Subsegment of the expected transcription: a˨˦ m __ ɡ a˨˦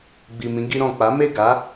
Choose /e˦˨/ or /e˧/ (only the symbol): e˦˨